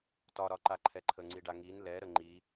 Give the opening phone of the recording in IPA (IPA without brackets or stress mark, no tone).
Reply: t